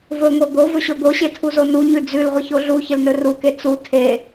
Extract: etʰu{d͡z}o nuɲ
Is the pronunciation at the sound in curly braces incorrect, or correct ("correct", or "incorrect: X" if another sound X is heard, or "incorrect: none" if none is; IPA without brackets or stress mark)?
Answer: incorrect: z